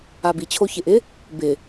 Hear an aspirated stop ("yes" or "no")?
yes